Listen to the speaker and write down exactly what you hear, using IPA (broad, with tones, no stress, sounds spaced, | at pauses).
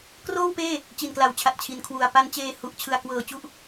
k r oː˥˩ w p eː˥˩ | t͡ɕ i˨˩ n k l a˨˩ w t͡ɕʰ a˨˩ t̚ t͡ɕʰ i˨˩ n kʰ w u˨˩ a̯ p a˧ n t͡ɕ eː˧ h u˨˩ ʔ t͡ɕʰ ɯ˧ a̯ k w ɤː˧ t͡ɕ u˥˩ ʔ